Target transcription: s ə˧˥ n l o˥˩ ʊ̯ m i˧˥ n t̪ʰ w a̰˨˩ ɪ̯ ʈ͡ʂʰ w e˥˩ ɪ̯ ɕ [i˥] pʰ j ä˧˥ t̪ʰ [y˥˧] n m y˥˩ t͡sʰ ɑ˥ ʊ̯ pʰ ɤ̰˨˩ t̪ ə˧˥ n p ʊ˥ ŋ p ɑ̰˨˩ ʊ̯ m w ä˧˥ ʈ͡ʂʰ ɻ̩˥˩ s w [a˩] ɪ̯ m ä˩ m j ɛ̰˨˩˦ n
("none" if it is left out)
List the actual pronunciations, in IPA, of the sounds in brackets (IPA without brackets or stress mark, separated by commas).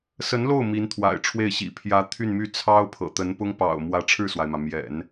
ḭ˨˩, y˥˧, a˩